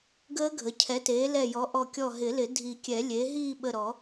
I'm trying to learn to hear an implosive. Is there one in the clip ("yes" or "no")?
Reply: yes